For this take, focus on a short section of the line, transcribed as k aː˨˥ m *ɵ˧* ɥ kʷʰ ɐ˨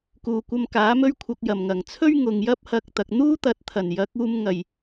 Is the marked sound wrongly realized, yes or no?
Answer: no